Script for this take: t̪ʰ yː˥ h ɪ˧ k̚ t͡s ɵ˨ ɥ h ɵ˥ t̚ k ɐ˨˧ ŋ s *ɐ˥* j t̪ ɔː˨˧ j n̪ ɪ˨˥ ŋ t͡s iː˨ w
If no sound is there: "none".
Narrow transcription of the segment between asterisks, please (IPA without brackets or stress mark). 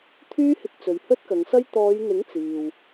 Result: ɐ˥